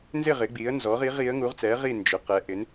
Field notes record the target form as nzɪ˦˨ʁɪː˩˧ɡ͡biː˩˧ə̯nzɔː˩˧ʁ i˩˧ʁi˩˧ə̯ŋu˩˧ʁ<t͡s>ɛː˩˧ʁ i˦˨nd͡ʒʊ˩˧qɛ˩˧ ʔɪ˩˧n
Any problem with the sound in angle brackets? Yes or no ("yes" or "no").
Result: no